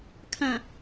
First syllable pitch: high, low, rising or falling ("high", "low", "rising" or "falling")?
low